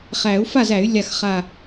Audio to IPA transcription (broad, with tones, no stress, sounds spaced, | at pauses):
χ æ˨˩˦ u̯ f a˥˨ z æ˨˩˦ y̯ lʲ a˧˩ x χ a˧˩